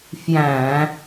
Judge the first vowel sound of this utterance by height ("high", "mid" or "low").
low